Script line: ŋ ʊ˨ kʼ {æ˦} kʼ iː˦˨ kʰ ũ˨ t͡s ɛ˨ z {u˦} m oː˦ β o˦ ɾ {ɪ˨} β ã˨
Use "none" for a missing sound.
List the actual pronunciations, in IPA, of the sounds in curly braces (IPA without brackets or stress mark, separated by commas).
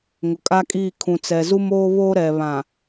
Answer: a˦, u˦, ɛ˨